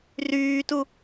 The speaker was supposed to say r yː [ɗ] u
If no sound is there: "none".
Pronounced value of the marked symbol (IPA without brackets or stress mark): t